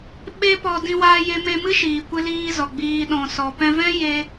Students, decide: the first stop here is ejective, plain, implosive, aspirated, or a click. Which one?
implosive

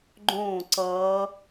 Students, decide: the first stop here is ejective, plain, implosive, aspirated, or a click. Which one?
click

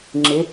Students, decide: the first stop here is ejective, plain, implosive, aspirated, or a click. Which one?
click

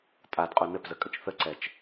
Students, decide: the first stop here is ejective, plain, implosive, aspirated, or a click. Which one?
ejective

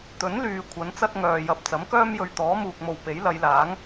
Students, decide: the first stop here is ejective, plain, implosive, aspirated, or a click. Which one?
plain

